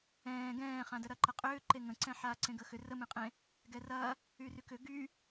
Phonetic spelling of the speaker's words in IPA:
ɛ̃ː ɡ ɛ̃ː χ ã d ə ɾ ɐ ǃ ɐ qʼ ʏː ǃ e ŋ ə̃ ǀ ɛ̃ ħ aː ǀ ẽ ɡ ə x ʏ r ə m ẽ qʼ ẽ | ɡ ɛ r ɐ | y r y k ʏ ɡ y

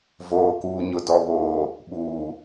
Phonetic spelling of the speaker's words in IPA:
v oː˨ k uː˨ ɲ ʊ˨ d ɔ˨ β oː˨ | ɓ uː˨

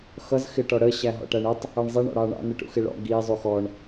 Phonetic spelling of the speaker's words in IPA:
x ʌ z x ɪ ʈ ɔ ɽ ə ɕ æ ɦ ɔ̰ ʈ æ ɳ ə tˤ | ʌ ɳ zˤ i ɳ ɔ̰ ɽ ɑ ɳ ɑ̰ n ə ʈ ṵ x ɪ ɭ ɔ̰ ɡ i zˤ u x ɔ ɳ

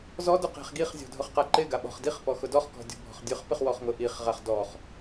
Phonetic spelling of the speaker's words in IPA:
z ɔ d ʊ q e̤ χ ɡ i χ zʲ ɔ̤ dʱ ʊ χ q a ǃ ɪ ɡ a ɓ ɔ̤ χ d i χ p ɔ x ʊ d ɔ χ k ɔ̤ dʲ ɔ̤ bʱ ɔ̤ χ dʲ ʊ χ p ɪ χ w ɔ χ ŋ ʊ ʔ i χ ʁ a χ d ɔ χ

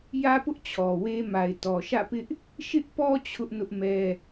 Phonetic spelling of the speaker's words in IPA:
j ä˦ p ʊ˦ ʔ t͡ɕʰ ɔ˨ w e˦ m a˨ ɪ̯ t ɔ˨ ʃ ä̰˦˨ p ɪ˦ ʔ | ʃ ɪ˦ ʔ p ɔ˦ t͡ɕʰ ʊ˦ ʔ n ʊ˦ ʔ m ɛ˦

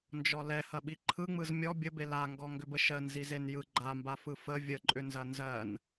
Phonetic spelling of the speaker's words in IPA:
n d͡ʒ ɔ l ɛ h ɐ ɓ i ǃʰ ɯ ŋ͡m ɯ z mʲ ɔ bʲ ə b e l a ŋ ɡ ɔ ŋ ɡ ʏ b ə ʃ ɜ n z i z e n j ɯ ɡ͡ǃ a m b a f ɯ f ə vʲ ə ǃʼ ʏ n z ɐ n z ɜ n

